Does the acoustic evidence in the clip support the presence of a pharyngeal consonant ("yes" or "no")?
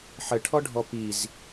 yes